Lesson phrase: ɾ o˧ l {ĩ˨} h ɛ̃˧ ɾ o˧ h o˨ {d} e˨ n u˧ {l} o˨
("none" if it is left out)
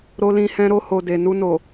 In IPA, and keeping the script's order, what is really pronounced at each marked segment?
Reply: ĩ˧, d, n

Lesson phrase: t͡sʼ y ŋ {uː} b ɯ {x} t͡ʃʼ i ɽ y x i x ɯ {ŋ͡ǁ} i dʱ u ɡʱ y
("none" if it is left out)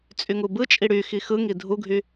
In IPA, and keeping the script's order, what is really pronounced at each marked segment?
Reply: u, none, ŋ

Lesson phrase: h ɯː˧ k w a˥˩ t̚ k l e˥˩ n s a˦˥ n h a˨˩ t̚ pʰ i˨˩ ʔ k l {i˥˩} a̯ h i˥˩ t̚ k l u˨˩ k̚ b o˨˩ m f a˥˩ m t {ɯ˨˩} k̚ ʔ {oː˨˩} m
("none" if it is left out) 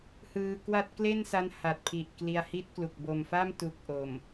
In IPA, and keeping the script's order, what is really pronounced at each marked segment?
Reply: i˧, u˨˩, o˨˩

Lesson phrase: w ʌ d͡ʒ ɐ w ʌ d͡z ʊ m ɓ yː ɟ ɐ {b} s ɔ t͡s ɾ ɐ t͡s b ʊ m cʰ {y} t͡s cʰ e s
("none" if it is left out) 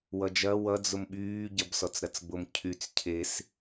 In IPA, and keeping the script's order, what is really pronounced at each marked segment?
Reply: b, y

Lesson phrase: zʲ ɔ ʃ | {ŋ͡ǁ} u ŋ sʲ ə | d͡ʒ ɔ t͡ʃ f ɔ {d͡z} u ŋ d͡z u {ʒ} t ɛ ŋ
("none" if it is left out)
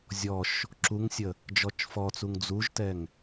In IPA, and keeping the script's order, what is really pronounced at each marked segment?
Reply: ǁ, t͡s, ʒ

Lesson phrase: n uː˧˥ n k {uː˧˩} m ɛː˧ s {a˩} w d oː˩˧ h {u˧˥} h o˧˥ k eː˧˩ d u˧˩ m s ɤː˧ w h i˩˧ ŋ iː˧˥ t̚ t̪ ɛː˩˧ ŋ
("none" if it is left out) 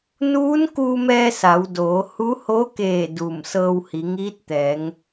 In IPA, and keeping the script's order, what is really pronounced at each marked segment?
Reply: uː˧, a˩˧, u˧˥

